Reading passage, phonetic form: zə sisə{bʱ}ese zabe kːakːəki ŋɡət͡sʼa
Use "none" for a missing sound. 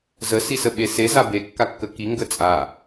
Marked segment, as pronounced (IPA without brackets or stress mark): ɓ